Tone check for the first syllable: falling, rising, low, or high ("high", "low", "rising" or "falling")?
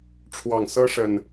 low